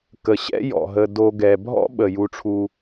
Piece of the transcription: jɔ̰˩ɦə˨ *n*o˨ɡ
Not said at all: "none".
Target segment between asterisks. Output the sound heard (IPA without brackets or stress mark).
d